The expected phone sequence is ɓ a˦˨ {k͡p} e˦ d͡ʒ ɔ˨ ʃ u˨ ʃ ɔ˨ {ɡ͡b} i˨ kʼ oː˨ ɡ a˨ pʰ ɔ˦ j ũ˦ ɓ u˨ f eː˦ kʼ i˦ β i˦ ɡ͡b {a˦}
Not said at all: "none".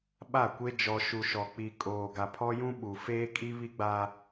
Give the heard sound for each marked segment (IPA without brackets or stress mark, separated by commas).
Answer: kʷ, k͡p, a˦